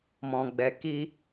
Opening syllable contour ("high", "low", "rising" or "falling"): low